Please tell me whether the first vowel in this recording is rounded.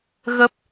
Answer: no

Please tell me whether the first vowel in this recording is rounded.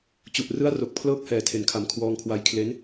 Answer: yes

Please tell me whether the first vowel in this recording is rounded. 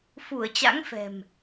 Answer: yes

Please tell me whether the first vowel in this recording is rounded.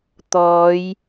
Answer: yes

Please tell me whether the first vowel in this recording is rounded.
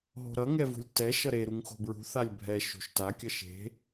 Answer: yes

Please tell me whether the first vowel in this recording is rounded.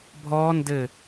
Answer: yes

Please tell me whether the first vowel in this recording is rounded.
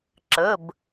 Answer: no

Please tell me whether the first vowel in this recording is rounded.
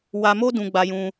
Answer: no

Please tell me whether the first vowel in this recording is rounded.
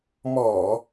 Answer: yes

